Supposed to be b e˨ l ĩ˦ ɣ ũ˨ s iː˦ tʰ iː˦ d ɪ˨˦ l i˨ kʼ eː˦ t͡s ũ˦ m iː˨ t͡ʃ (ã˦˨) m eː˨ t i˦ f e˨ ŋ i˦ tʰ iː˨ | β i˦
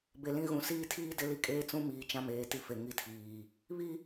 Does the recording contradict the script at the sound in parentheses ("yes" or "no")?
yes